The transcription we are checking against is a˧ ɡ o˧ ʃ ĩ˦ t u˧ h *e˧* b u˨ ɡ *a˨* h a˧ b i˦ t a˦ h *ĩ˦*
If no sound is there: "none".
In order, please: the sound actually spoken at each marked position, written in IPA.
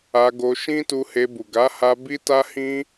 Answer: e˧, a˨˦, ĩ˦

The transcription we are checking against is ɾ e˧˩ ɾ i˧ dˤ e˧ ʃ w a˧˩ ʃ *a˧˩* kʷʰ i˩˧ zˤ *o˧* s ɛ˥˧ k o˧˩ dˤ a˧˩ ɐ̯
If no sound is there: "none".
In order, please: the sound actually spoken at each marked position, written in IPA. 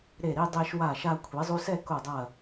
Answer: a˧, u˧

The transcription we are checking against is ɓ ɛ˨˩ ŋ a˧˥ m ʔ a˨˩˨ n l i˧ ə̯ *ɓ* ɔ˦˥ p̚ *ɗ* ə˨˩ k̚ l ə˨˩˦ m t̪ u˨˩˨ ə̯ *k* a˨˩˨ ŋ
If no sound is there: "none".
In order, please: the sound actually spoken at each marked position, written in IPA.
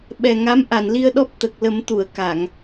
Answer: ɗ, t̪, k

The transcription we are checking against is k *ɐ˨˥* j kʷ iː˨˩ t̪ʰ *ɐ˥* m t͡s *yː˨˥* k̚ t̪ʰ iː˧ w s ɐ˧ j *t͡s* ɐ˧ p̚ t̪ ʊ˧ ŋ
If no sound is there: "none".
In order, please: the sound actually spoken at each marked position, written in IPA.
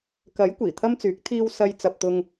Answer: ɐ˨˥, ɐ˥, yː˨˥, t͡s

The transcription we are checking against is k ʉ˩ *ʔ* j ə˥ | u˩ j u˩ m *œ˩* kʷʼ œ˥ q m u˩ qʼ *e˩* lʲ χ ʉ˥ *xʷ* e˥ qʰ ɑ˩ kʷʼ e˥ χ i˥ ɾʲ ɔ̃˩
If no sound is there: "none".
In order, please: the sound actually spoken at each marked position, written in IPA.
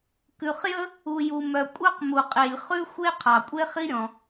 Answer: χ, œ˩, e˩, xʷ

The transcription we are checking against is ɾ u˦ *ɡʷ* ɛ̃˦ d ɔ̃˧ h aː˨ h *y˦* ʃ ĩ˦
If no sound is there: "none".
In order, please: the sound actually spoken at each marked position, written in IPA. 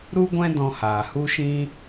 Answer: ɡʷ, u˦

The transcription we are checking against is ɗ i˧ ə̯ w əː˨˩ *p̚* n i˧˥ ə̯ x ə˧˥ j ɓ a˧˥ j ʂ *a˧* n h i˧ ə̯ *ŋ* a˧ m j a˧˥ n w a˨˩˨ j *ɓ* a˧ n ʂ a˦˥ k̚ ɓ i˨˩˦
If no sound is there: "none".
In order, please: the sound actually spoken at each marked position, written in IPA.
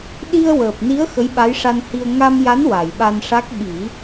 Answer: p̚, a˧, ŋ, ɓ

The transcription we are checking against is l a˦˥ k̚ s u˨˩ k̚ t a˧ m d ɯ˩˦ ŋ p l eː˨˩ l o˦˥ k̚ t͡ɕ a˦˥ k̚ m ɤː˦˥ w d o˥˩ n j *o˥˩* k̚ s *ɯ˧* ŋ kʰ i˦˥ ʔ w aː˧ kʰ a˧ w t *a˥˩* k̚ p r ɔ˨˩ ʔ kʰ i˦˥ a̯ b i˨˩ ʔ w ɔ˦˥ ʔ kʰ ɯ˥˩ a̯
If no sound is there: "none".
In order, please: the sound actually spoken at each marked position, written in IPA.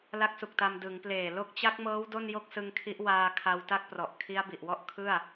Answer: o˥˩, ɯ˧, a˥˩

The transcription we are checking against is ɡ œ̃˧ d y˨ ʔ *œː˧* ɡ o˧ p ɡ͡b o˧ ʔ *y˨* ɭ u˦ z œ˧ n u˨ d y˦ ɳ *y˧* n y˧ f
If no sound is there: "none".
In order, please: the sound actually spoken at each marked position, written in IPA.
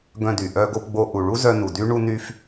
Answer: œ˧, u˨, u˧

